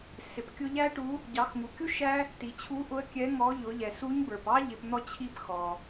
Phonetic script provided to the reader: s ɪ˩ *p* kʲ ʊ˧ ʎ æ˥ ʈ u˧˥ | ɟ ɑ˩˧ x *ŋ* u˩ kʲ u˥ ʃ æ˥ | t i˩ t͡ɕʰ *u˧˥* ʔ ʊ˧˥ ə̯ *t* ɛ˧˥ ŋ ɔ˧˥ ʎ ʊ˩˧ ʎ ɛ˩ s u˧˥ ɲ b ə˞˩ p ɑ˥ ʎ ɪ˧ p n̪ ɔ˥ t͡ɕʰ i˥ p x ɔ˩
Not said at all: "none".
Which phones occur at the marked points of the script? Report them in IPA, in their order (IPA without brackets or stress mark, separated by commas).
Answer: p, ŋ, u˧˥, kʲ